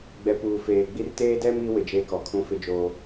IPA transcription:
ɡ͡b ɛ˨ p uː˨ f eː˨ ɡ͡b i˦ r t eː˦ d ɛ˦ m i˨˦ w ɪ˨ d͡ʒ eː˦ k ɔ˨ kʰ ũ˦ f ɪ˦ d͡ʒ oː˦

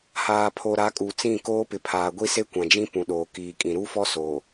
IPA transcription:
h aː˨ pʰ o˨ ɾ a˨˦ kʼ u˨ t͡s ĩ˦˨ k oː˦ p ɪ˨ pʰ aː˨ ɡʷ i˦ s e˦ kʷ ã˨ d͡ʒ ĩ˦ p ũ˨ ɗ oː˨ k iː˨ kʼ ĩ˨ ɾ u˦ f ɔ˦ s o˨

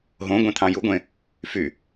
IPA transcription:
ɦ õ ɡʷ ẽ t̪ʰ ɑ̃ j u ɡʷ ẽ | f y

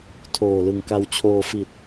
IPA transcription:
tʰ oː˨˩ l ɯ˨˩ ŋ k a˧ w t͡ɕʰ oː˧ f i˨˩ t̚

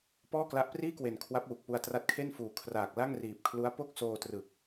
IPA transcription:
p ɔː˥˩ k l a˦˥ ʔ p r iː˥˩ k w e˨˩ n kʰ w a˦˥ p̚ w u˨˩ k̚ p u˦˥ a̯ t r a˦˥ t̚ kʰ e˥˩ n f uː˨˩ kʰ r aː˨˩ k̚ l a˥˩ ŋ r iː˨˩ p̚ kʰ l u˦˥ a̯ p o˥˩ k̚ s oː˧ t r ɯ˨˩ k̚

